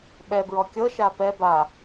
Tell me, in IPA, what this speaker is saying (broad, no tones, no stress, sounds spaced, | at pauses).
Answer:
ɓ ɛ b ɹ ɔ kʲ ɤ ʃ a p ɛ b a